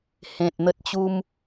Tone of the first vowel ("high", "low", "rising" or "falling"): low